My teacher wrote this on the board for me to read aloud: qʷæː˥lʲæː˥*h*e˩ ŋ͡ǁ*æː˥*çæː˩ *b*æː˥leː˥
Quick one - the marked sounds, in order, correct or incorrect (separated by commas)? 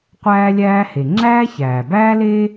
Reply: correct, correct, correct